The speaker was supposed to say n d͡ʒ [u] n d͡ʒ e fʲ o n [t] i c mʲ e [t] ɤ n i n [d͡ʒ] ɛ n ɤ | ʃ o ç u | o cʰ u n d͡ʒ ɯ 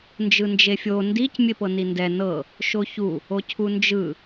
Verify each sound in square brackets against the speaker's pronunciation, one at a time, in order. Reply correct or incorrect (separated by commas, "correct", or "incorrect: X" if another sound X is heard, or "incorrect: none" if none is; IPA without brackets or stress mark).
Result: incorrect: ɯ, incorrect: d, incorrect: p, incorrect: d